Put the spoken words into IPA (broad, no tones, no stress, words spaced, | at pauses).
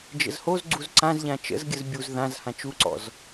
d͡ʒə̰zhoz ɡ͡ǀuzǀãzʎã t͡ʃə̰zɡʲəz bʲuz ðãz hãt͡ʃuǀɔ̰z